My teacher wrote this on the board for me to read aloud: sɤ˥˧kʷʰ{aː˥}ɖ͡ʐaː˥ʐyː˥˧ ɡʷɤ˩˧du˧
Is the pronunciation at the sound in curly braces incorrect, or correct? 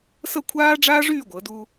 correct